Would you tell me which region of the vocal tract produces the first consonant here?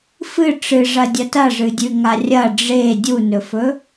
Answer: lips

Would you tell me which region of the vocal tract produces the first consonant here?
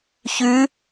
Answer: palate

